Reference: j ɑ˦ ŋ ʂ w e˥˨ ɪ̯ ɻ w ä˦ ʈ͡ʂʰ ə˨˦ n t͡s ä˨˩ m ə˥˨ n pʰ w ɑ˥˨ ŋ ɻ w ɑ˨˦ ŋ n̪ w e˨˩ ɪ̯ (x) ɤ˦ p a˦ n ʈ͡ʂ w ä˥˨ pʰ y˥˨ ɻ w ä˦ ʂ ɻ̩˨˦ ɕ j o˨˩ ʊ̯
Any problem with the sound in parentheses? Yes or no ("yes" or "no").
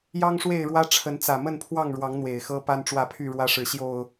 no